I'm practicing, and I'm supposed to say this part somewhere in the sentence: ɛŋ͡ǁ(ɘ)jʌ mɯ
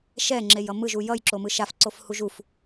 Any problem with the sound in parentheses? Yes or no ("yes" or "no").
yes